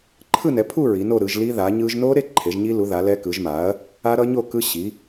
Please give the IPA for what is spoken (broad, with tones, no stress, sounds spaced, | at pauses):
ǃʰ ɯ˥˧ n ɛ˨˥ pʰ u˥˧ ɹ i˨˥ n o˥˧ ɾ ɯ˨˥ ʒ l i˦˥ ð a˨˥ ɲ ɯ˦˥ ʒ n o˦˥ ɾ e˥˧ ǃʰ e˨˥ ʒ ɲ i˦˥ l u˨˥ ð a˨˥ l ɛ˦˥ k ɯ˨˥ ʒ m a˨˥ ɐ̯ | a˦˥ ɾ ʌ˦˥ ɲ o˥˧ k ɯ˦˥ ɕ i˨˥